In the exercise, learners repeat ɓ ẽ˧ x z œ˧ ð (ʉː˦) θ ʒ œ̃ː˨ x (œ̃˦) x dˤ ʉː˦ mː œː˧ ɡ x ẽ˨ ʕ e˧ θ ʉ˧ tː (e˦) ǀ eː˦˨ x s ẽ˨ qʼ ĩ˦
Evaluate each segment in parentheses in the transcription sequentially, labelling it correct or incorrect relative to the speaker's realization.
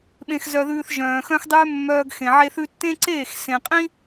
incorrect, correct, incorrect

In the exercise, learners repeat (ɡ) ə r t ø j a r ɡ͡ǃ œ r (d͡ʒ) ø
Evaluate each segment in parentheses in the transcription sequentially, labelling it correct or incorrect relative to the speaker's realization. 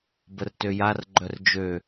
incorrect, correct

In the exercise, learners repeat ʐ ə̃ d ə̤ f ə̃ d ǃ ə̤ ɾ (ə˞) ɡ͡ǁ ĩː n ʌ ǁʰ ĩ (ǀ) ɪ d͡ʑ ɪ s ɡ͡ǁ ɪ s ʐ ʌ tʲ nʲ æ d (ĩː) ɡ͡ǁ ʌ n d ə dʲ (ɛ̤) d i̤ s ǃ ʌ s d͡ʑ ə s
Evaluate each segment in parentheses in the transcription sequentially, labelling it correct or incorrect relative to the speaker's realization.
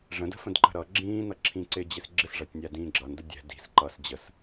incorrect, correct, correct, correct

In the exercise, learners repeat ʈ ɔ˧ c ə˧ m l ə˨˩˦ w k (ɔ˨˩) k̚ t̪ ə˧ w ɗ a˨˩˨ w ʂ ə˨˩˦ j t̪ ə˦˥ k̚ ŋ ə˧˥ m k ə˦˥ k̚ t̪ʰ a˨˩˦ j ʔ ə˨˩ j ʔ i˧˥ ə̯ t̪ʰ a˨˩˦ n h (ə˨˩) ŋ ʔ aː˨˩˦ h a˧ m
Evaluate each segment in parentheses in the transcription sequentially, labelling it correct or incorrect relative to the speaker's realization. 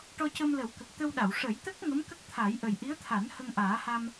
incorrect, incorrect

